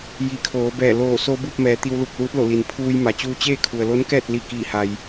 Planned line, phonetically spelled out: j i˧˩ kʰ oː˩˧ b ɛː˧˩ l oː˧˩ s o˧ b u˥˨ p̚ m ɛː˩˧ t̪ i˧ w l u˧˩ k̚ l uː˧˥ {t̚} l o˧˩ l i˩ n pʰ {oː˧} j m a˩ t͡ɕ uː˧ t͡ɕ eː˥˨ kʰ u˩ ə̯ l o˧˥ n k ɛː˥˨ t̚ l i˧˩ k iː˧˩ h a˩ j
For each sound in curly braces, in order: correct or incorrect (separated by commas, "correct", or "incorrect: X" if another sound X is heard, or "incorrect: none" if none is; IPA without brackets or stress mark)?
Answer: correct, incorrect: uː˧